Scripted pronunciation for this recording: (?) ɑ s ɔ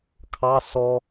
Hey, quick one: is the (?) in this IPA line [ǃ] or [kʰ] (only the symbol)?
kʰ